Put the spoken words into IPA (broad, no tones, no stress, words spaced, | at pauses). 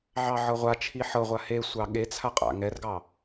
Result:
ʕɑʕɤʁʷat͡ʃʰi ħɤʁʷa hesʷɑ ɠet͡sʰa qʼa̰ŋɛrɡɑ